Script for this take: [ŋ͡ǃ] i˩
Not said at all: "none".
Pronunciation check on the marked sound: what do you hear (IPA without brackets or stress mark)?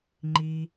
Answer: ŋ͡ǃ